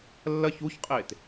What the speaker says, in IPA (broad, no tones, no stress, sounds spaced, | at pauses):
lː ɐ ç u ç qʼ e t